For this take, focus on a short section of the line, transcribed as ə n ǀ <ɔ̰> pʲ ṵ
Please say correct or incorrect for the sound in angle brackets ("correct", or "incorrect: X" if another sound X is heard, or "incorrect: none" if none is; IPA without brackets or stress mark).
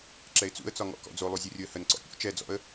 correct